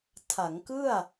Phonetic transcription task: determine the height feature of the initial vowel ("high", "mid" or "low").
low